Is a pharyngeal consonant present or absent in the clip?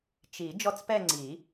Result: absent